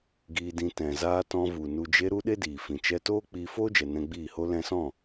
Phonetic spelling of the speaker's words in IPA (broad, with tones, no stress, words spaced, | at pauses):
ɡiː˧dĩ˧ tɛ̃˨zaː˧ tɔ̃˧vu˨ nu˨d͡ʒe˧ɾu˧ ɗe˦diː˨fĩ˨ t͡ʃɛ˧toː˦ k͡piː˧foː˦d͡ʒɛ˨ nɛ̃˧ɡ͡biː˦˨ho˦ lɛ̃˧sɔ̃˦˨